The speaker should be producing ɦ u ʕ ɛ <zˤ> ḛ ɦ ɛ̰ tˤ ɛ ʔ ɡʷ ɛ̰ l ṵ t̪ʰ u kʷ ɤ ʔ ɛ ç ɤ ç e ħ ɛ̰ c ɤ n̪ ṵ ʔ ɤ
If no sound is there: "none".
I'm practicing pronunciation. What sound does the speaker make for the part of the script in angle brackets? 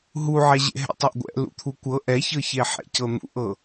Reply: ʑ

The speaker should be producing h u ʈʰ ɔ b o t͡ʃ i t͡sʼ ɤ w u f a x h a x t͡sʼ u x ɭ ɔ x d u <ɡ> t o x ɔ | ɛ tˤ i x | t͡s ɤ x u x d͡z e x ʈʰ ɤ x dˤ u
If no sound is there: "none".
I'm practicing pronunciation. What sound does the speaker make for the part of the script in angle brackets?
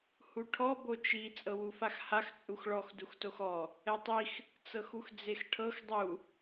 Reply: x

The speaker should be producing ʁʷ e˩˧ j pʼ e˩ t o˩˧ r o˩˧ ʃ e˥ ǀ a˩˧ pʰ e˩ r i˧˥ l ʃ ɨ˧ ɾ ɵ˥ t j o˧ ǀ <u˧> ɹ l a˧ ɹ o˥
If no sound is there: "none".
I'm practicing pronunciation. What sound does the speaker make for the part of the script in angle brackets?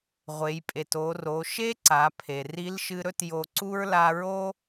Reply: u˥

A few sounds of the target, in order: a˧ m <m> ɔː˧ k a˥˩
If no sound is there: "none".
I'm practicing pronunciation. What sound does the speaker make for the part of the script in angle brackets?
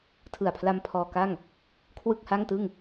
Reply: pʰ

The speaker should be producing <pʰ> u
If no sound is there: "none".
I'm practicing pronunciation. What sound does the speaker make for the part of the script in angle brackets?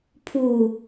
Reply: pʰ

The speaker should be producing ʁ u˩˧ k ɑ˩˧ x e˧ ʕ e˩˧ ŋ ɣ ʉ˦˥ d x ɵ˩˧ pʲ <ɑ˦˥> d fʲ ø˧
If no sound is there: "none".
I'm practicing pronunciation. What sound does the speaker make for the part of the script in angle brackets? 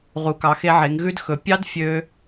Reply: ɑ˦˥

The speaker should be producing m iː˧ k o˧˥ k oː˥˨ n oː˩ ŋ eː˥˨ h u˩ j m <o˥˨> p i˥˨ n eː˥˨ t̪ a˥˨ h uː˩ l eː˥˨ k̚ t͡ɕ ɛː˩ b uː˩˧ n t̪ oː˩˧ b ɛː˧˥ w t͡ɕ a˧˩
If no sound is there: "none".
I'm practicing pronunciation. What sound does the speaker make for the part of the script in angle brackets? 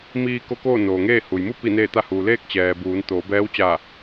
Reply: u˥˨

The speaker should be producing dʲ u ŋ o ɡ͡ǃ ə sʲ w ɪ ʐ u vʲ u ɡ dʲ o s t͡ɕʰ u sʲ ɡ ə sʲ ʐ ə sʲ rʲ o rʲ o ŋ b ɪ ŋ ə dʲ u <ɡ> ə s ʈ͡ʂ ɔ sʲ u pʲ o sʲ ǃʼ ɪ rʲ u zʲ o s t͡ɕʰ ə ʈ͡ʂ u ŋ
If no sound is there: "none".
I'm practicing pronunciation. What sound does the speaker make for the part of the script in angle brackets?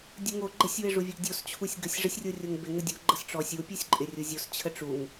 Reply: ɡ͡ǃ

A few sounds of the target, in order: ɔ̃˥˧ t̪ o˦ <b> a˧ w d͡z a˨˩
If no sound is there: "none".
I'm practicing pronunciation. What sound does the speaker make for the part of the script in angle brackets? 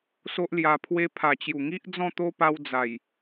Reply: p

